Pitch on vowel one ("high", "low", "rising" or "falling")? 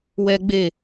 high